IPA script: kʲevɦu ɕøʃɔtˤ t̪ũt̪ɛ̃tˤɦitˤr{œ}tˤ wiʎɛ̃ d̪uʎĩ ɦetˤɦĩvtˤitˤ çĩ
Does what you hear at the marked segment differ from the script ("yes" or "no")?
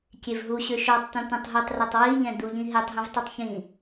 no